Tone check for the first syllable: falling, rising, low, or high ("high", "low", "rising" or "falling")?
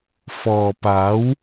low